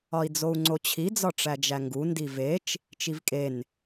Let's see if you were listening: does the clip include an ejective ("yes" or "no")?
yes